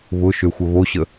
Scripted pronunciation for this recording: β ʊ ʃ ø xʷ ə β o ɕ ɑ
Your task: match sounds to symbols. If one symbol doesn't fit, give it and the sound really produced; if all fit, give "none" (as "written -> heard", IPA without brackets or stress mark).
ɑ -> ə